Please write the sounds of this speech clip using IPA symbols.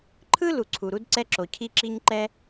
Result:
ǃʰ ɯ˥ l u˩ ǀʰ u˩ ɾ u˥ d ǀ ɛ˥ ǁ o˩ cʰ i˥ ǁ i˥ ɲ ǃ ɛ˥

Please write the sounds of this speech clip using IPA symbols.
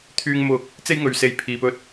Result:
t̪ʰ yː˧ ŋ m ʊ˨ k̚ | t͡s e˥ j ŋ ɵ˨ ɥ s e˧ j pʰ iː˨ p ɵ˥ t̚

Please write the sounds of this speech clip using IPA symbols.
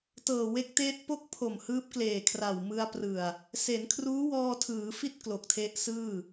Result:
t ɤː˨˩ w e˦˥ k̚ t eː˦˥ t̚ p o˥˩ k̚ pʰ o˨˩ m h ɯː˦˥ p̚ k l eː˨˩ kʰ r a˨˩ w m ɯ˧ a̯ p r ɯ˨˩ a̯ | s e˩˦ n kʰ r uː˦˥ w ɔː˧ tʰ ɯː˩˦ f i˥˩ t̚ k l o˨˩ k̚ tʰ e˦˥ ʔ s ɯː˥˩

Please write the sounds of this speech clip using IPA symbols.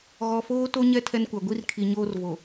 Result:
ɣ ɔ˨ f oː˦ t o˦ ɲ ɛ˦ tʰ ɛ˦ n kʷ a˨ ɡʷ i˦ r kʰ i˨ ɲ oː˦ r v o˨

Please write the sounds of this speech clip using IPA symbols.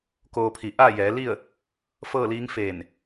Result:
k oː˧ pʰ i˧˩ ʔ aː˥˨ j ɛː˩˧ l i˥˨ ə̯ | f ɤː˥˨ l iː˧˥ ŋ f eː˧˩ n

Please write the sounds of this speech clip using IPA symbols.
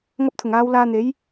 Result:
ŋ ɐ˧ p̚ t̪ʰ ʊ˨˩ ŋ aː˨˧ w l aː˧ n̪ e˨˥ j

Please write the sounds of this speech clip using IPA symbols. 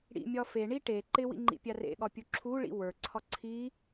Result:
ɽ ḭ mʲ ɒ f e ɳ i ʈ e ǃ ɪ w ḭ ŋ͡ǃ ḭ pʲ a r ḛ ɠ ɒ pʲ u ǁʰ u ɭ ḭ w ə˞ ǀʰ ɒ ǀʰ i

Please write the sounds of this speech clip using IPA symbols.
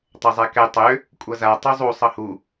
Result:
tˤ ɛ zˤ ɛ k ɛ tˤ ø | kʷʼ ʌ z a tˤ u zˤ u sˤ ʌ h u

